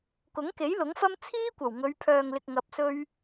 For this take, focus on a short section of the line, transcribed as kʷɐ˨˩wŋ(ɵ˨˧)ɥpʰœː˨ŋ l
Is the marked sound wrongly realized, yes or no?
no